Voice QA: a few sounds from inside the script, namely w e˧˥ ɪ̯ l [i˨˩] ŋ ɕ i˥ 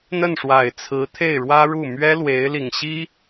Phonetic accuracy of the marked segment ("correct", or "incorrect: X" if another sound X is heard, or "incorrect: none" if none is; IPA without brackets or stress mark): correct